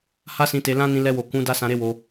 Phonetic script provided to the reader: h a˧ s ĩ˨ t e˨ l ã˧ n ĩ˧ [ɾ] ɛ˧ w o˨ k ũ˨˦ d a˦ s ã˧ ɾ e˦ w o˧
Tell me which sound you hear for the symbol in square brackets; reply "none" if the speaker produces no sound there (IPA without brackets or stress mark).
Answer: l